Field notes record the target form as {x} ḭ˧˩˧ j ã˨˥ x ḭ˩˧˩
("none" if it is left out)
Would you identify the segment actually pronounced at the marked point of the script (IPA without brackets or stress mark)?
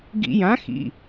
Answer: ɡ